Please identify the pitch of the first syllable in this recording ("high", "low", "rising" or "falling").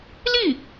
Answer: falling